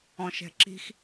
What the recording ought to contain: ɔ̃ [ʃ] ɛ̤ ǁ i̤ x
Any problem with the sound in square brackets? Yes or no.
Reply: no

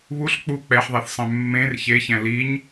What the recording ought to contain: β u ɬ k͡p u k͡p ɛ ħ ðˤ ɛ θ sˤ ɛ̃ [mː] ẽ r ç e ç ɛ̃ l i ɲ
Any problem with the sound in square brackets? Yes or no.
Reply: no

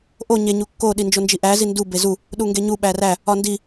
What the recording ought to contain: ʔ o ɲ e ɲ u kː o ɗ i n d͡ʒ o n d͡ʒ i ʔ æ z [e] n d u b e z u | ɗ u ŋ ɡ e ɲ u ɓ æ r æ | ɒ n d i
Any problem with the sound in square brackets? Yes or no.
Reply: yes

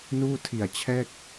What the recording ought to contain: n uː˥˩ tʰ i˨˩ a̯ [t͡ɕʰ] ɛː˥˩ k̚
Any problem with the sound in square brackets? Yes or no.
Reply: no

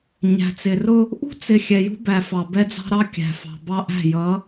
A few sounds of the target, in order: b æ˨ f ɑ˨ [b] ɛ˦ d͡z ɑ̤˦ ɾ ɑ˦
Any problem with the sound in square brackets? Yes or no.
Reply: no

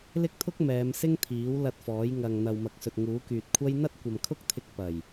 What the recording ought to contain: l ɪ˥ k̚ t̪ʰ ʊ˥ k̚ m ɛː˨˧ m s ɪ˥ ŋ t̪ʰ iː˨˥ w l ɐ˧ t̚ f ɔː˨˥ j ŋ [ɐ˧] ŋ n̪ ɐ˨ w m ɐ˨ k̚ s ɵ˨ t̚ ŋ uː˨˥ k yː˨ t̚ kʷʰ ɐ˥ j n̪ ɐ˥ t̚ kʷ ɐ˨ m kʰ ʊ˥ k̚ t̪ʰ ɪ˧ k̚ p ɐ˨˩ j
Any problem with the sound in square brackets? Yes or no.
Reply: yes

